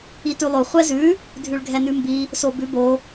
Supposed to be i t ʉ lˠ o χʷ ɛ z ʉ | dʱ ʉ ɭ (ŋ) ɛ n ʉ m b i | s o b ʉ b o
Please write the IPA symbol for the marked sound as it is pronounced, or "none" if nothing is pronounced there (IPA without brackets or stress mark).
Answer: ɡʱ